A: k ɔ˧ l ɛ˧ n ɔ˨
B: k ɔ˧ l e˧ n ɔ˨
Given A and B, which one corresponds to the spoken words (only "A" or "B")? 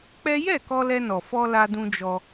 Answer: A